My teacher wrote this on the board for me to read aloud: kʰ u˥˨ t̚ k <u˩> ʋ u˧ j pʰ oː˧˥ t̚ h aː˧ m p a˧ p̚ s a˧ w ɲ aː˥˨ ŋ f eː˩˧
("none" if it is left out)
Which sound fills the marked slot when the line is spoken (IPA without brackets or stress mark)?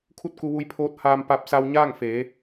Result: u˧